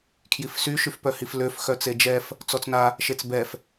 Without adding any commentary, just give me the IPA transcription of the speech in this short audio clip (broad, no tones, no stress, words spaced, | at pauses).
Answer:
kʰjifsy ʃyfpœhifløf xœt͡sed͡ʒɛf | t͡sɔt͡sna | ʃet͡sbɛf